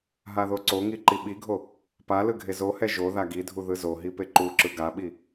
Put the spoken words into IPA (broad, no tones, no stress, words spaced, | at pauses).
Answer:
ɦaðoǀoŋi ǃiɓiɡʱo | pa lɯɡʱezohɛ ʒo ðaɡidʱu ðɯzoɦi peǃuǁɯ ɡaɓi